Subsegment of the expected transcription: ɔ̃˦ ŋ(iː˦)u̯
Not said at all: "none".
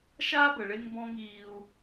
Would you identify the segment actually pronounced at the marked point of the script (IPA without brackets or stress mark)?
iː˦